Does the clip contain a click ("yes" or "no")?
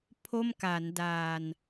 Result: no